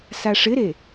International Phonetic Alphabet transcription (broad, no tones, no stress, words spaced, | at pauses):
saʂɪɾe